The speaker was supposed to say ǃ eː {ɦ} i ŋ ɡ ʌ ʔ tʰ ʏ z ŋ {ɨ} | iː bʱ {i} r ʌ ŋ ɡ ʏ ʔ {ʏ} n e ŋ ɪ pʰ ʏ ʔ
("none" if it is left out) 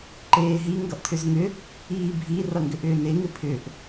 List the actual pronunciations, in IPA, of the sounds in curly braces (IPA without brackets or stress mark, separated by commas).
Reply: ɦ, ʏ, i, ʏː